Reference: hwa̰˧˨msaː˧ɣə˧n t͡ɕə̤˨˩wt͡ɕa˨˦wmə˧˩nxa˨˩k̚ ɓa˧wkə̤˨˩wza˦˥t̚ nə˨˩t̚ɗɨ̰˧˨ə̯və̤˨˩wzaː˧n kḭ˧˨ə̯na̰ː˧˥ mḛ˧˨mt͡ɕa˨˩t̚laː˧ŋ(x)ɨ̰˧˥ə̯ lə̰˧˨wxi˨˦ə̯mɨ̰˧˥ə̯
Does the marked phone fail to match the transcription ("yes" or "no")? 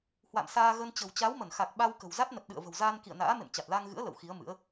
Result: yes